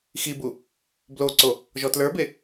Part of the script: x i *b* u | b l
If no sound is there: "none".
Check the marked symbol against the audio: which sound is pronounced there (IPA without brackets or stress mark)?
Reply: b